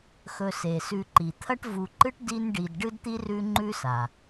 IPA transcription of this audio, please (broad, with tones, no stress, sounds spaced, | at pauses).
x ɵ˨ s e˩ s ʉ˨ ǃ i˩ t̪ʰ ɐ˦ ʈ v u˨ ǃ ɨ˦ ʈ d i˦ n ɖ i˨ d ɖ ɨ˥ d t̪ i˥ r ʉ˦ ŋ͡ǃ ʉ˦ s a˩